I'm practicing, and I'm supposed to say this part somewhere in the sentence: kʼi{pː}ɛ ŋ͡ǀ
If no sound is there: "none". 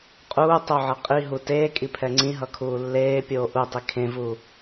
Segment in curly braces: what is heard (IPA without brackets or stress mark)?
pʰ